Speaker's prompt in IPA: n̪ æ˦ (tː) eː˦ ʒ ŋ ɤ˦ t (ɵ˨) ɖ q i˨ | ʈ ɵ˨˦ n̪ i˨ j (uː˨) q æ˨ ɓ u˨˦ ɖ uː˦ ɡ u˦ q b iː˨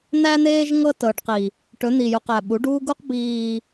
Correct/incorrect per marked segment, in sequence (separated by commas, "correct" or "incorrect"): incorrect, incorrect, incorrect